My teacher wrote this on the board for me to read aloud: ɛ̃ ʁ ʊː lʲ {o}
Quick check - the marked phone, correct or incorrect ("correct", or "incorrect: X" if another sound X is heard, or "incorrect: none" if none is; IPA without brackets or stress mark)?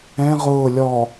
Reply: incorrect: ɔ